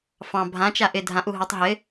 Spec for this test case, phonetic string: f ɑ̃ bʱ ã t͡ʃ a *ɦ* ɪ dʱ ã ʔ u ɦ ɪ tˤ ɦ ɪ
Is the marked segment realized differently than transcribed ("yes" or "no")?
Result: yes